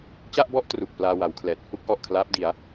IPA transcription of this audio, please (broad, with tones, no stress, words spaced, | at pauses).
t͡ɕa˥˩ʔbɔ˥˩ʔ tru˨˩k̚ plaː˧wa˩˦wkʰlɛː˨˩t̚ hu˥˩k̚ ʔɔ˨˩ʔkʰlaː˦˥p̚di˩˦a̯